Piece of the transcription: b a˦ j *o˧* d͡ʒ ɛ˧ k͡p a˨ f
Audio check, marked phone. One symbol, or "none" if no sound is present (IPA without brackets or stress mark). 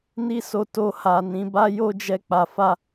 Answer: o˦